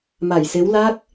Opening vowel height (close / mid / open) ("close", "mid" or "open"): open